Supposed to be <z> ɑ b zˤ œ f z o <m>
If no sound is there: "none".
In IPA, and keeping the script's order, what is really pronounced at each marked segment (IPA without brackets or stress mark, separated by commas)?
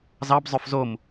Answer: z, m